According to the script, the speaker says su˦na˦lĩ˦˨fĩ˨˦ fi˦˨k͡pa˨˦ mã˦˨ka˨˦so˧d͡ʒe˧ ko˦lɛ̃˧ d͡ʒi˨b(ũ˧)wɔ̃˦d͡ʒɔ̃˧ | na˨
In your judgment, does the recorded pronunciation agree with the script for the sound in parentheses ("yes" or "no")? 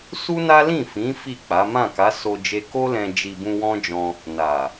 yes